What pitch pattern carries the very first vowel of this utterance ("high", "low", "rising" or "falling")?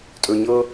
low